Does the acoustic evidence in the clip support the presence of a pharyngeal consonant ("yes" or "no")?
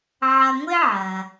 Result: yes